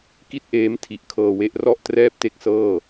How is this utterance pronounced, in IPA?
k i˥˩ t̚ ʔ eː˦˥ m tʰ i˨˩ ʔ kʰ ɤː˧ w e˦˥ ʔ r ɔ˥˩ ʔ t r ɛː˥˩ p̚ t e˥˩ k̚ s ɤː˥˩

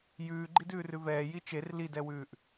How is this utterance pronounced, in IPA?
j ʉː ɡ͡ǃ i d ʉː r ʉ v ɛː j i t͡ʃ e r l i d ɛ w ʉː ʔ

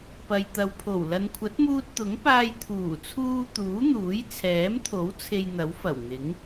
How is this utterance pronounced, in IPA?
p ɐ˨ j t̪ ɐ˨˧ w pʰ o˨˩ w l ɐ˨ n kʷʰ ɐ˨˥ t̚ m uː˧ t̚ t̪ ʊ˨˥ ŋ p aː˧ j t̪ʰ uː˨˩ t͡sʰ uː˧ t̪ uː˨˥ n̪ uː˨˥ j t͡sʰ ɛː˨˥ m t̪ʰ o˨˥ w t͡sʰ e˧ j n̪ ɐ˨˥ w f ɐ˨˩ w n̪ ɪ˨˥ ŋ

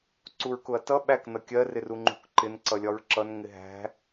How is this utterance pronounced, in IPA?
ǀ u ɹ k ʊ ɐ̯ t ʌ ɓ æ k n ʌ kʲ ɜ r ɪ r u ŋ͡ǃ ṳ k ǃ ɪ n ǀ ʌ lʲ ɒ ɹ ǁ ʌ n ŋ ɪ ɦ æ̤

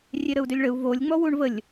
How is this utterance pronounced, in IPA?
rʲ e ɾ ə u̯ d ø lʲ ɭ ə u̯ v o lʲ ŋ͡m ɔ w u ɳ v ə lʲ

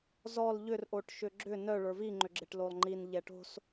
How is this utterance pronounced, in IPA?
z ɔ l ʎ ʏ r ʔ o ʈ ʃ ʏ ɡ͡ǁ ʏ n œ ɭ ə˞ v i ŋ͡ǃ ʏ ɡ͡ǁ e ʈ l o lˠ ŋ͡ǃ i n ʎ ɛ ʈ o̤ s

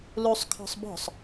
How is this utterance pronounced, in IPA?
l u sˤ kʰ ɔ̤ sˤ b ɔ̤ sˤ

